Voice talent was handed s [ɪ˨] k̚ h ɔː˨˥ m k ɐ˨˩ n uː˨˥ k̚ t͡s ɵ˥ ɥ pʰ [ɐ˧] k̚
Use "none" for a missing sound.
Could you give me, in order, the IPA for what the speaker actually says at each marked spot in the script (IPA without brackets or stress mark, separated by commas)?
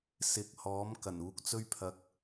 ɪ˨, ɐ˧